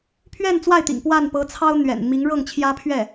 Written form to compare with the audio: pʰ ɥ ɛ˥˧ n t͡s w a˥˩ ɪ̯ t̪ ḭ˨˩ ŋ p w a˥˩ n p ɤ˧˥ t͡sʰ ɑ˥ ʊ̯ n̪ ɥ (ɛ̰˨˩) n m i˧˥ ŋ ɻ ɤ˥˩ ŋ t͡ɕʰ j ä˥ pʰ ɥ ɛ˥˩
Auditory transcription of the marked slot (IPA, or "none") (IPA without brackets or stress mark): ɛ̰˨˩